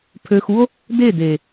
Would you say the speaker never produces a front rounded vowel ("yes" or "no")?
no